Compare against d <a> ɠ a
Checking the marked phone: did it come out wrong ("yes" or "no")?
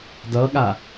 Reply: yes